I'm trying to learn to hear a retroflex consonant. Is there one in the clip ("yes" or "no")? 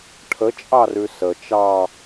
yes